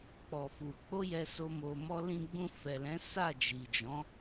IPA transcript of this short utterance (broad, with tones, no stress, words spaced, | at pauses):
k͡pɔ˨fu˨k͡po˧ jɛ˧so˧ mo˧mɔ˦ lĩ˧ɡ͡bũ˧fɛ˨lɛ̃˨˦ sa˦˨d͡ʒi˨d͡ʒɔ̃˨˦